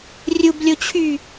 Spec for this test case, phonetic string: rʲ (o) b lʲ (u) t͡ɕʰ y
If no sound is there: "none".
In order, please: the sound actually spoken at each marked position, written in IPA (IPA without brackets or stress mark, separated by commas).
u, o